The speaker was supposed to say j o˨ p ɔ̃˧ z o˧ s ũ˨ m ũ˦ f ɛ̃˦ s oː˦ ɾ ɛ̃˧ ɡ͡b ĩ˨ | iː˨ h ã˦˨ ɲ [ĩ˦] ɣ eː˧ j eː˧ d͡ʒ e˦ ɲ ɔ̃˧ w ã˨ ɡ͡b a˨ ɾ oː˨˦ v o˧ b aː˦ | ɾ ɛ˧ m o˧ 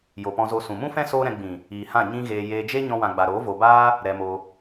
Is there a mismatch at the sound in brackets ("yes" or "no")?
no